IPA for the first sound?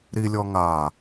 ɾ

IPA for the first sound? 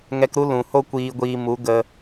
ŋ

